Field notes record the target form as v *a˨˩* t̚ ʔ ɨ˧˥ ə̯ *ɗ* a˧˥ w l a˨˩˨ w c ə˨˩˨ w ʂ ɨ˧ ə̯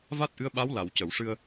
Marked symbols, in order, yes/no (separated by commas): no, no